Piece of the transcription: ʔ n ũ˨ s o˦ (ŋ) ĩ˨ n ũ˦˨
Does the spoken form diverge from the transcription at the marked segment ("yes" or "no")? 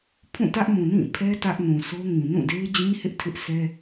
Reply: no